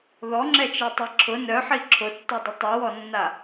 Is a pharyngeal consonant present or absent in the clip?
present